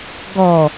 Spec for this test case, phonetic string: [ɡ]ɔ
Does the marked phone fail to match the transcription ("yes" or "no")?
no